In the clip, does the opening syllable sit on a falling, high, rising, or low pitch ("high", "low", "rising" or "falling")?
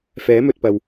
rising